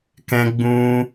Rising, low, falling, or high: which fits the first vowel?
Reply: high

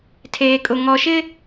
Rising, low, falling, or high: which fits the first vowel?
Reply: low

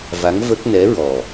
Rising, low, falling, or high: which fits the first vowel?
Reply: rising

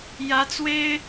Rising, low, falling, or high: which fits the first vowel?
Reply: rising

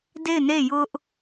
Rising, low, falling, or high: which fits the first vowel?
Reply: falling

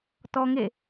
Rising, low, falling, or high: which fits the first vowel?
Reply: high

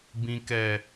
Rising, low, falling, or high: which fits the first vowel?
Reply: low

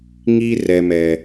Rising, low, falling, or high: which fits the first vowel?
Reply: high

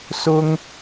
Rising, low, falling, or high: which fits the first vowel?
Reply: high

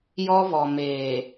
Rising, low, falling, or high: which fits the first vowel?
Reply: high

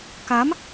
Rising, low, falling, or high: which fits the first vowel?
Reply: rising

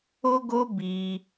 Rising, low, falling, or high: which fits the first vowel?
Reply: high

